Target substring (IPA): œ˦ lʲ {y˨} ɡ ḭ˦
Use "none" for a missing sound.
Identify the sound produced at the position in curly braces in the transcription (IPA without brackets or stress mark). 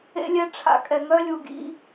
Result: u˨